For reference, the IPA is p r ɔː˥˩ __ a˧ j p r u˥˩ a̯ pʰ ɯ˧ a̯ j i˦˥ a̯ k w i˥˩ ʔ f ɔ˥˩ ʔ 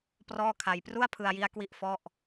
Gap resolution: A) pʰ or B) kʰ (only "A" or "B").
B